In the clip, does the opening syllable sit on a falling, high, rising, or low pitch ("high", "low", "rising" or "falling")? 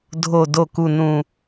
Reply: low